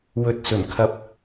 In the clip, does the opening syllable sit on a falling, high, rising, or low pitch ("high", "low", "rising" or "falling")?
rising